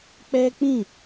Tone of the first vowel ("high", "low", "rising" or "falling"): high